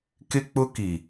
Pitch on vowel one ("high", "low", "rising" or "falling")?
high